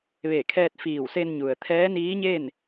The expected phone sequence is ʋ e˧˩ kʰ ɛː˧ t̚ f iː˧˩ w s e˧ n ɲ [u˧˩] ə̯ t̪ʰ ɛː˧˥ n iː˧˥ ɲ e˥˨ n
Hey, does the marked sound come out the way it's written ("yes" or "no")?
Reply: no